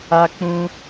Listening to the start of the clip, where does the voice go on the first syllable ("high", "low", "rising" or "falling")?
high